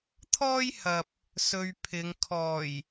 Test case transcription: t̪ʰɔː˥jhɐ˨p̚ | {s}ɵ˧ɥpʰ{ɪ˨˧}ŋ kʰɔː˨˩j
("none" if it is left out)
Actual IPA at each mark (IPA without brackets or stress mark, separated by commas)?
s, ɪ˨˧